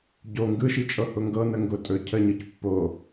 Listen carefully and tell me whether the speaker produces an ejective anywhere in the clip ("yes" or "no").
yes